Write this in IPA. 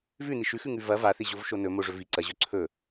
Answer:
v ʉ n i ʃ ʉ x ʉ ŋ ʉ v ɐ v a θ i ʑ o v ʃ o n ɵ m o ʐ ɵ v i ǀ ɐ ʑ ɵ ǀʰ ɵ

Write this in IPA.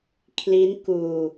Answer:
kʰ l i˦˥ n k uː˧

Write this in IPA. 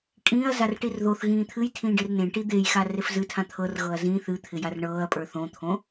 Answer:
kʼ ĩː ɐ̯ z a r ʈ i r ð o θ ɣ ĩː t̪ʰ ɨ j tʰ ĩː ɖ e r n ẽ ʈ i d̪ e j x a r e f z ɨ tʰ ã t̪ʰ ɤ r ɣ ɤ ɐ̯ z ĩ θ ɨ t̪ʰ ɪ j a r ɳ ɤː ɐ̯ pʼ ə˞ θ õ t̪ʰ õ

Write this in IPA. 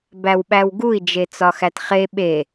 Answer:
b æ w ɓ æ w ɡ u i̯ d͡ʒ e t͡s ɒ x æ t χ e ɓ e

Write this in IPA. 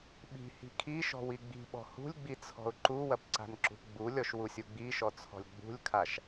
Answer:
ɓ i̤ h i̤ kʰ i ʃ ɔ̤ w i ɡ͡b i̤ ɓ ɔ̤ h ṳ lʲ ɡ͡b i t͡sʰ ɔ̤ ʊ̯ ǃ u w ɐ p ǀ a̤ n ǁ ṳ p ɡ͡b u lʲ ɔ ʃ w u sʲ u ɡ͡b i ʃ ɔ t͡sʰ ɔ̤ lʲ ɡ͡b ṳ lʲ kʰ a ʃ

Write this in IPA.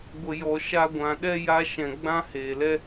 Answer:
ɡʷ ə˨ j ɔ˨ ʃ a˧ ɡʷ ã˨ ɗ ɛ˦ j a˧ ʃ ɛ̃˨ ɡ͡b ã˦ h eː˨ l ɛ˦

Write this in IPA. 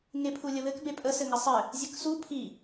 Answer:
ŋ e pʰ u lʲ ə β ɘ k b e pʼ ə s ɘ ŋ ə sˤ ɘ | zʲ ɘ k s u pʰ i

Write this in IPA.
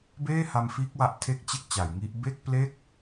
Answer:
b eː˥˩ h a˧ m f iː˦˥ k̚ w a˦˥ ʔ tʰ e˥˩ k̚ t͡ɕ e˥˩ k̚ t͡ɕ a˩˦ j ŋ i˦˥ ʔ b e˥˩ k̚ p l e˥˩ k̚

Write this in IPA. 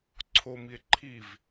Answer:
ǀʰ o m i e̯ ǃʰ i v

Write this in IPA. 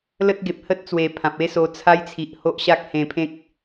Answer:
l ə˦ t̚ ɡ e˨ p̚ h ə˦ t̚ t͡s w e˨˩ pʰ ã˨ p̚ e˦ s o˧ t͡sʰ a˦ j t͡sʰ i˨ ʔ h o˦ ʔ ɕ a˦ k̚ h ẽ˧ pʰ ẽ˦ k̚

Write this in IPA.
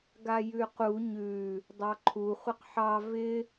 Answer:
ɡ a j ʉ q u ɲ ʉ | dˤ ɑ ǃʰ u χʷ ɪ q ħ ɑ v ɪ

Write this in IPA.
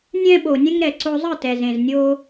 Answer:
nʲ ɛ̃˦ ɓ o˨ nʲ ɛ̃˦ ŋ ɾ ɛ˨ ǀ o˧ zˤ ɯ˦˨ t ɛ˨ z ẽ˨ z nʲ o˦

